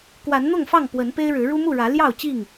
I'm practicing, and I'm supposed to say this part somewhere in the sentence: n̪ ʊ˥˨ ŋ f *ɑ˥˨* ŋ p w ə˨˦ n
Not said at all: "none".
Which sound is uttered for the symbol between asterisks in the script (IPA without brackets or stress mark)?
ɑ˥˨